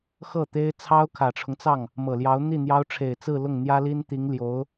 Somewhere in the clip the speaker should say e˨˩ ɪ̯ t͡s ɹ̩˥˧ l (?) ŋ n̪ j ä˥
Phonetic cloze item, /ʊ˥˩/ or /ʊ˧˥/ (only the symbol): ʊ˥˩